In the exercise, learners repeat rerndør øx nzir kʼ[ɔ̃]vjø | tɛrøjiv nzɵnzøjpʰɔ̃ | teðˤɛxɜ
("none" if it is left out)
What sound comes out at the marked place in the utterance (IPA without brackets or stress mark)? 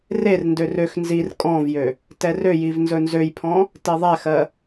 ɔ̃